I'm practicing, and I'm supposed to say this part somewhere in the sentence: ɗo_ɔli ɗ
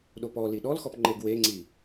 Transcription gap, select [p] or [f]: p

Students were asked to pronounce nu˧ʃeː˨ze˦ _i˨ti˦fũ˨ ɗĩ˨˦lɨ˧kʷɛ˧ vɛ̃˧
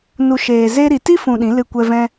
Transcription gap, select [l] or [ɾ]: ɾ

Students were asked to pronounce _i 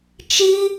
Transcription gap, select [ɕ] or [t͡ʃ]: t͡ʃ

